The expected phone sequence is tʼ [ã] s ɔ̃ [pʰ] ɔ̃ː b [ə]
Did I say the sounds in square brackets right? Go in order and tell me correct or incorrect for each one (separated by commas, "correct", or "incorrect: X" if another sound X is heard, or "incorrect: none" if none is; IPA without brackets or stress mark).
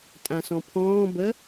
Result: correct, correct, correct